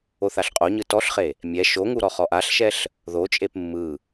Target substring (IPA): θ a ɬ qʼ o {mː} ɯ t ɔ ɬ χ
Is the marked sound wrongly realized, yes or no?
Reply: yes